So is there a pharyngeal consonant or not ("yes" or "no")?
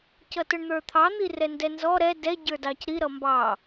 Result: no